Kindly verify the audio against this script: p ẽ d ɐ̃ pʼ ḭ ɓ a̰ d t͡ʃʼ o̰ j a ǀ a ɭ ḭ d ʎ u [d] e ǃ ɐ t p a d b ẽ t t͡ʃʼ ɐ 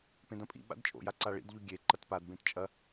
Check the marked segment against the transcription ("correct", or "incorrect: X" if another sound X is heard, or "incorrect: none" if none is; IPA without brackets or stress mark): incorrect: ɡʲ